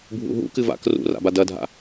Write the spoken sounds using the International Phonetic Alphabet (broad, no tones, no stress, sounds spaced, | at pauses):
bʱ ṵ ɦ ṵ k ɨ v a̰ k r ṵ r a̰ b a d ɐ dʱ a̰